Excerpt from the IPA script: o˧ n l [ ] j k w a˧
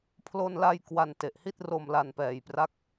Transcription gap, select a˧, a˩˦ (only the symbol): a˧